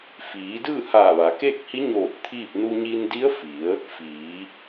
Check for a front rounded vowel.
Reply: absent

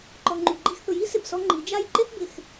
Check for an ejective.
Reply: absent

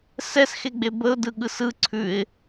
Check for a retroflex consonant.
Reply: absent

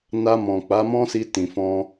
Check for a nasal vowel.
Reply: present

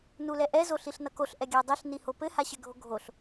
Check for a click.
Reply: absent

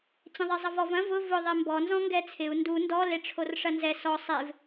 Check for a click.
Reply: absent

